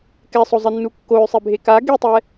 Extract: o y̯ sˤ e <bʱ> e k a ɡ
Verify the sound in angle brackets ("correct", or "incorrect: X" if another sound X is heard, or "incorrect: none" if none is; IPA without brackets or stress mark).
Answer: correct